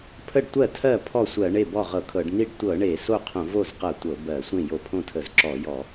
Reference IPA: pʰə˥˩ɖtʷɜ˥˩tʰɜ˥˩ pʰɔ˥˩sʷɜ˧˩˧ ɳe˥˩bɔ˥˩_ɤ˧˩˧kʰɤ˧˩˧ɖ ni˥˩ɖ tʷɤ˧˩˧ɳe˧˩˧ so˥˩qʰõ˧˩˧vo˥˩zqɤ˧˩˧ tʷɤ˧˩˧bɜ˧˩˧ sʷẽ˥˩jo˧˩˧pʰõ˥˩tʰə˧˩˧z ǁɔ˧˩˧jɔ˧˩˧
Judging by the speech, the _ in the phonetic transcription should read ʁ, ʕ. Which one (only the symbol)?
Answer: ʁ